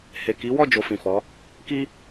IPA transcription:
h e˨ k i˨˦ w ɔ˦˨ d͡ʒ o˧ f ĩ˨ f ɔ˨˦ | k i˦

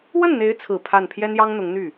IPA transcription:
w ə˥˩ n n̪ e˧˥ ɪ̯ t͡sʰ ɹ̩˨˩ pʰ a˥˩ n pʰ j ɛ˥ n j ɑ˥ ŋ n̪ ʊ˧˥ ŋ n̪ y˥˩

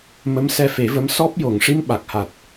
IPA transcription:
m ə˧˥ m s ɛ˧ f e˨˩˦ v ə˧˥ m s ɔ˦˥ p̚ j o˨˩˨ ŋ ʂ i˧ m ɓ a˨˩ k̚ h a˨˩ t̚

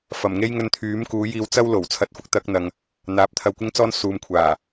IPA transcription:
f ɐ˨˩ m ŋ e˥ j ŋ ɵ˧ n t̪ʰ yː˨˥ m k uː˨˥ j iː˧ w t͡s ɐ˥ w l o˨˩ w t͡sʰ ɐ˧ t̚ f ʊ˥ k̚ t̪ ɐ˨˥ k̚ n̪ ɐ˨ ŋ | n̪ aː˨ p̚ t̪ʰ ɐ˧ w kʷ ɪ˥ ŋ t͡s ɔː˥ n s uː˨ m kʷʰ aː˨˩

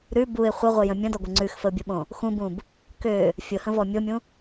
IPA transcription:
ɾ ʉ b u ɪ̯ χʷ ə ʁʷ ə j ə̃ mʲ ə̃ d ɔ ɡʷ ə ŋ͡ǀ ʉ x f ə ʊ̯ bʲ ʊ ɓ õ | x ũ b ũ b | k ø | fʲ ʊ h ə̃ v ɔ mʲ o mʲ ũ

